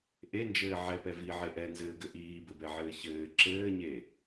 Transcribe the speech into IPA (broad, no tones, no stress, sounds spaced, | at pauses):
ʔ e n d͡ʒ ɘː ʕ ɛ p ɛ v i ʕ e ʔ ɛ n z ɘː ɡ ɘ ʔ iː b ɘ b ɛ ʕ ɘː ç ɘː ǁ ɘː ɲ e